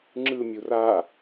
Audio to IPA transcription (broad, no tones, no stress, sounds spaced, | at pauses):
ŋ͡ǁ ɯ mʲ u r a